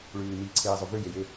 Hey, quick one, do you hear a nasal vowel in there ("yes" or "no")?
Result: no